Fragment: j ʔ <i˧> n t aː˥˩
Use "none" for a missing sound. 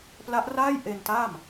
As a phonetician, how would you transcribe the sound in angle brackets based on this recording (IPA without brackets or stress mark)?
e˧